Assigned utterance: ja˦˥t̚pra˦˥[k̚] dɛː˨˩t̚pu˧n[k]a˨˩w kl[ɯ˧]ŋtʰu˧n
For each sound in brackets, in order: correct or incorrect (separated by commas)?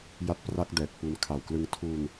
correct, incorrect, correct